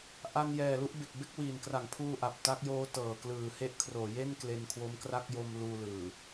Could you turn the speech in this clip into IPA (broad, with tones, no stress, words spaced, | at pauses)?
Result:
ʔa˧njɛː˨˩ lu˦˥ʔbe˨˩k̚be˥˩k̚ wiː˨˩nkra˩˦ŋpʰuː˧ ʔa˨˩p̚ ta˦˥k̚joː˦˥tɤː˨˩ klɯː˨˩ he˦˥ʔkʰroː˩˦je˥˩n kle˧nkʰwo˦˥mkra˥˩k̚ jo˧m luː˧lɯː˨˩